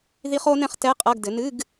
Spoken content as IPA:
ð i˦˥ χ o˦˥ n ɛ̃˦˥ χ t ɛ˧˥˧ qʼ ɐ˧˥˧ ɡ d ɘ˩˥ n ɨ˧˥˧ ɡ

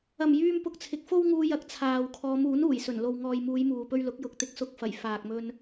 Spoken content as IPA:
ɐ˨˩ m j yː˧ m p ʊ˨ k̚ t͡sʰ ɪ˨ k̚ f o˥ w ŋ uː˧ j ɐ˨˥ k̚ t͡sʰ aː˨ w kʰ ɔː˨˧ m uː˨˥ n uː˨˩ j s ɵ˨˩ n l o˨ w ŋ ɔː˨ j m uː˨˧ j m uː˨ p ɵ˧ ɥ l ʊ˨˥ k̚ j ʊ˨˥ k̚ t̪ ɪ˧ k̚ s ʊ˧ k̚ f ɐ˨˩ j f aː˨ k̚ m ɵ˧ n

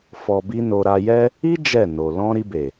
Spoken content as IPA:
f ɔ˧ b i˦ n o˧ ɾ a˧ j ɛ˦ | i˦ d͡ʒ ɛ˦˨ n o˨ l ɔ̃˧ ɾ i˧ b e˨

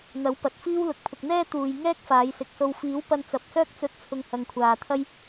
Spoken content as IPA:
n̪ ɐ˨˥ w p ɐ˨ t̚ f iː˥ w l ʊ˨ k̚ pʰ ʊ˨ k̚ n̪ ɛː˥ t̪ uː˨ j ŋ ɛː˥ k̚ f aː˨˧ j s ɪ˨˥ k̚ s o˧ w f iː˨˥ w p ɐ˧ n t͡s ɐ˨ p̚ s œː˥ k̚ t͡s ɵ˧ t̚ t͡sʰ ʊ˧ ŋ h ɐ˨ ŋ kʷʰ aː˨ t̪ʰ ɐ˥ j

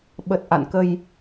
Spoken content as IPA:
ɓ ə˨˩ t̚ ʔ a̰˧˨ n k ə˧ j

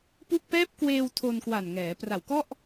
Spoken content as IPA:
p u˥˩ k̚ p ɛː˦˥ p̚ k w eː˧ w tʰ o˧ n k w a˨˩ n ŋ ɛː˩˦ p r a˨˩ w k ɔ˥˩ ʔ

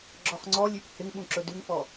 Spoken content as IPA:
ɡ͡ǁ ɔ χ ŋ͡ǀ ɔ lʲ ʉ p h ɪ ŋ ɓ ũ ǁ ɵ d ʉ ŋ f ɔ

